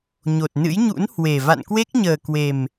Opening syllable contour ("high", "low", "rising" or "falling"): low